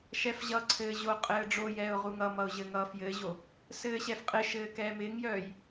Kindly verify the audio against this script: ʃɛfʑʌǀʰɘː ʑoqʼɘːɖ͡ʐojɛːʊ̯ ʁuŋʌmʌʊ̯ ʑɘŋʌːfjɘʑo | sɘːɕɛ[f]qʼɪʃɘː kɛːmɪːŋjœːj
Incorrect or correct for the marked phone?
correct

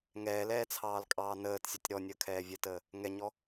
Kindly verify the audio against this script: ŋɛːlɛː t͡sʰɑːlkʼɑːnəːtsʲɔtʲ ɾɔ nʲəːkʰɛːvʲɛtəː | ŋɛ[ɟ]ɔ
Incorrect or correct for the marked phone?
incorrect: ɲ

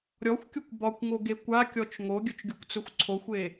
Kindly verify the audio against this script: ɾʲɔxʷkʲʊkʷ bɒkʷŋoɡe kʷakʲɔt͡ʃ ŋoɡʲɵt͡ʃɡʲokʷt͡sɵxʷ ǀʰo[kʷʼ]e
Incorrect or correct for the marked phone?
incorrect: xʷ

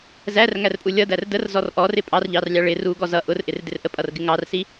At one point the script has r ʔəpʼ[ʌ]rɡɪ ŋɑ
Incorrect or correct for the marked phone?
correct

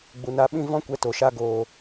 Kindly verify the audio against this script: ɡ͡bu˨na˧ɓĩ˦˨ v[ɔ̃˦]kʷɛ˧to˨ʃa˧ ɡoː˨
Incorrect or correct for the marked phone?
correct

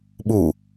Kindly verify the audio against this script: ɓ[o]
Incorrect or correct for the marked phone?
incorrect: u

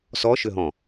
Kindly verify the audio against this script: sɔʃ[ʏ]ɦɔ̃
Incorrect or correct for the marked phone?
correct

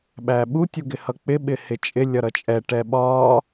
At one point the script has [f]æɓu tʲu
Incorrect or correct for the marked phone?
incorrect: ɓ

